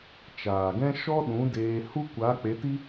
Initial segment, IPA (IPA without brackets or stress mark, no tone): t͡ʃ